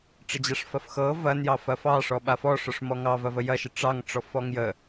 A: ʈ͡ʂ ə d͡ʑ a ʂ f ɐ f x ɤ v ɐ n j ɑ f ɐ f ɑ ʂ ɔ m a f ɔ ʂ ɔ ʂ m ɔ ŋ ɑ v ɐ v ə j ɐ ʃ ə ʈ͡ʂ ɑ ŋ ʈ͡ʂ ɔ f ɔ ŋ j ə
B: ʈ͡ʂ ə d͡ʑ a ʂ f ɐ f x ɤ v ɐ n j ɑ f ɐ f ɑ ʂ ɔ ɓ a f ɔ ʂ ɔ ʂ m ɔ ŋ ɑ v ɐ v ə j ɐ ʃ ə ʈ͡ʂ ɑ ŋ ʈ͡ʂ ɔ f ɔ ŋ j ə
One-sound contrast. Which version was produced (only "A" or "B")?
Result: B